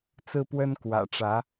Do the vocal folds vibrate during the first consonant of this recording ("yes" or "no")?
no